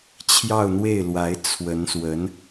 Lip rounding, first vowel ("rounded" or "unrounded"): unrounded